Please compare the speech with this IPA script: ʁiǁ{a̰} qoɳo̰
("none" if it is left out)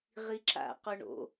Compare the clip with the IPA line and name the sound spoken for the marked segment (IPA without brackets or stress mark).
a̰